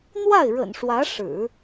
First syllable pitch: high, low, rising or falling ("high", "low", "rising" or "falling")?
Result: falling